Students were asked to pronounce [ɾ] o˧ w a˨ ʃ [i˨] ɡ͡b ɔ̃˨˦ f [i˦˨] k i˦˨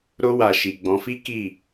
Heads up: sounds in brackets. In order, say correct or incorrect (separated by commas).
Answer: correct, correct, incorrect